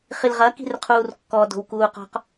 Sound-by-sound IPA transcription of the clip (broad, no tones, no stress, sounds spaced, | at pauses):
χ i l ʁ ɐ k i̤ r qʰ uː r kː ɔ d o̤ w k uː q ɔ̤ q